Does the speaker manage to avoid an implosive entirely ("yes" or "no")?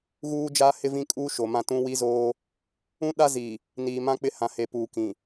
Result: no